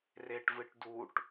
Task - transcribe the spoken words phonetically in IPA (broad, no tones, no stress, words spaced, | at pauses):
reʈvɨʈduʈ